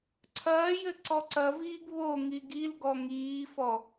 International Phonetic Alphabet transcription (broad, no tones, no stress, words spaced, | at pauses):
ǀʰɐːjɘ ǀɔǀɐviːɡ βo ŋiɡilɡɔ ŋiːfɔ